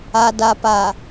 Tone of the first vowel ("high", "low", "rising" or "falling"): low